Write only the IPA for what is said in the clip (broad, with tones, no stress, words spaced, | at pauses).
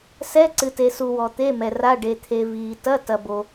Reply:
sɛ˧˥˧ǀɨ˨te˨su˨ wɔ˨t̪e˧˥˧mɛ˨ra˧˥˧ ɖe˨t̪ʰe˨viː˨ tɐ˧˥˧ tɐ˨bo˨